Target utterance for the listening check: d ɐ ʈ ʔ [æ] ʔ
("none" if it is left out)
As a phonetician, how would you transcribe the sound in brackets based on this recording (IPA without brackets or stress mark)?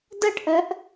œ